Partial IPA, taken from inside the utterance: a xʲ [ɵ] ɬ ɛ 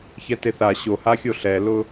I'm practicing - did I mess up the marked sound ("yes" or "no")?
yes